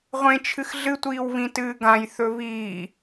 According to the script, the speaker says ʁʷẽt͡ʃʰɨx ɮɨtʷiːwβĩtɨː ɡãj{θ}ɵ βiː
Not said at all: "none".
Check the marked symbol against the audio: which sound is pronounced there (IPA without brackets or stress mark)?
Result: θ